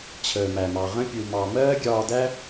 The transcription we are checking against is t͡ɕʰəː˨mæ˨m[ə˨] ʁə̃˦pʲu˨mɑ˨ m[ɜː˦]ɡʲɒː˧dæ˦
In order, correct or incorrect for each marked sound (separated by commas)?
incorrect, correct